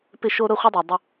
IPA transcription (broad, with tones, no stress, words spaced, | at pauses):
pɪ˦ ʃo˦ ɾʊ˦˨χʷi˦dˤa˨ dˤʊ˦